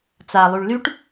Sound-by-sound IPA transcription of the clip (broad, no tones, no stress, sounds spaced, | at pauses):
t͡s a lˠ y ɭ l y ʈ